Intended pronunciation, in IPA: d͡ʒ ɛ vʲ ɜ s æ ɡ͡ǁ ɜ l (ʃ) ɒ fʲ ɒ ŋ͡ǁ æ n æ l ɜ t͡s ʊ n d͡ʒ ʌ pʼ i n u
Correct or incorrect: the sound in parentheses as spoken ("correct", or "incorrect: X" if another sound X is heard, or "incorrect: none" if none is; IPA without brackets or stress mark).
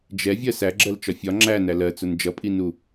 incorrect: t͡ʃ